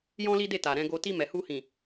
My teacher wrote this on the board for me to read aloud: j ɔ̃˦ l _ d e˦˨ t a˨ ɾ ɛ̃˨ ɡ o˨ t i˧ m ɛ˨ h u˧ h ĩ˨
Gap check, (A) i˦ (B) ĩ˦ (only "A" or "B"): A